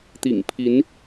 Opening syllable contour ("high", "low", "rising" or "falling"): low